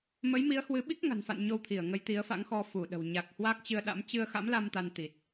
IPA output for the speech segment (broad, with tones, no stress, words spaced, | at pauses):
mə˨˦jmi˨˦ə̯hwɨ˨˦ɓi˦˥k̚ ŋa̤˨˩nfa̰˧˨n ɲo˧wt̪ʰi˧˩ə̯ ŋə˨˦jt̪i˨˦ə̯fa̰˧˥ŋxɔ˧ fu˧˩ɗə̤˨˩w ɲa˨˩k̚ hwa˦˥k̚t͡ɕɨ˧ə̯ɗa̰˧˥m t͡ɕɨ˧ə̯ xa̰˧˥mla˧m t̪a˧nt̪i˨˩t̚